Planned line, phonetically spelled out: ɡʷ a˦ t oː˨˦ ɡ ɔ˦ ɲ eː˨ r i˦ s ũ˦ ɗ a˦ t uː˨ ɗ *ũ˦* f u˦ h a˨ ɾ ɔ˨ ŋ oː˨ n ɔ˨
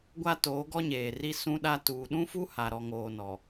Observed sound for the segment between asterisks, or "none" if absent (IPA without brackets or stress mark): ũ˦